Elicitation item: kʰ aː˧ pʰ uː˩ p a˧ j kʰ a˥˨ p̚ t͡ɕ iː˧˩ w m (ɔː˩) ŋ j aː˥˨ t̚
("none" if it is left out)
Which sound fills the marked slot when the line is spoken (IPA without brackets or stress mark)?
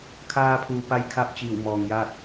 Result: ɔː˩